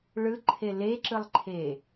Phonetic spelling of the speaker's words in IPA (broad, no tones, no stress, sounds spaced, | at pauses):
ɭ ɯ ǃʰ e l e ǁ ɯ lˠ ǃʰ e